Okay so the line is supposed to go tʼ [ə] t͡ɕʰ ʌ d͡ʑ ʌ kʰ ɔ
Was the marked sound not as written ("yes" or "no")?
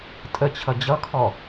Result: no